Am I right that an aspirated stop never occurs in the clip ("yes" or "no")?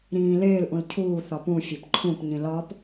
no